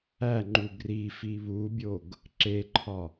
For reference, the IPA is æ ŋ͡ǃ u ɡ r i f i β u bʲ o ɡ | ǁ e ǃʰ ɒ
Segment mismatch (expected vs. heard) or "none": none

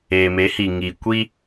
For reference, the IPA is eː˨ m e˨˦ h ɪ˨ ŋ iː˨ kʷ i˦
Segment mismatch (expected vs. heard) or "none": ɪ˨ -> i˨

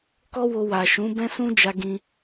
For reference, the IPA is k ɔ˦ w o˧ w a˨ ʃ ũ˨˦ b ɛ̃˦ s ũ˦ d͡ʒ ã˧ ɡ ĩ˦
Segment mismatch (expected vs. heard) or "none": ã˧ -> a˧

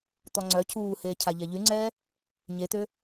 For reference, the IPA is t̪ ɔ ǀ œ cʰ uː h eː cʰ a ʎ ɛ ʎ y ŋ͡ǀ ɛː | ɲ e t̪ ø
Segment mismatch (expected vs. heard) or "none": ǀ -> ŋ͡ǀ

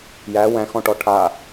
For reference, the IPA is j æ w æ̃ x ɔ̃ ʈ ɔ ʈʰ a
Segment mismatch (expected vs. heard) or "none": none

